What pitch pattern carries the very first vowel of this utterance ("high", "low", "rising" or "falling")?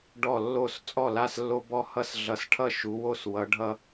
falling